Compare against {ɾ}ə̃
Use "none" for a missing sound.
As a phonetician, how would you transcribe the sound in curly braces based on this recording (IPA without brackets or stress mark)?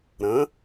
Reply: ɾ